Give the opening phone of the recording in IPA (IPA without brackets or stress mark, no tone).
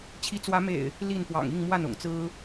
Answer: t͡ɕʰ